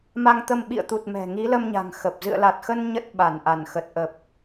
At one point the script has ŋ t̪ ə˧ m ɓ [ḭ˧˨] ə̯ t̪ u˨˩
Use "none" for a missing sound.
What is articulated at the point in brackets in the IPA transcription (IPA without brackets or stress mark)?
ḭ˧˨